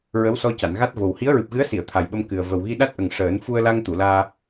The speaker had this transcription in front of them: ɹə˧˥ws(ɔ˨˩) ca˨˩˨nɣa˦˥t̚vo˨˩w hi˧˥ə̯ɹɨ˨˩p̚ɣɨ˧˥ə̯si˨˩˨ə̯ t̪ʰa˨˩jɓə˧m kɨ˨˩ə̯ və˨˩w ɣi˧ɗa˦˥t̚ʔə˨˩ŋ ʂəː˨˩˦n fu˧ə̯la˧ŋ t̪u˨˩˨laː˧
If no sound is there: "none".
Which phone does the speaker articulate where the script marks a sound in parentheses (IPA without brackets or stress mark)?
ɔ˧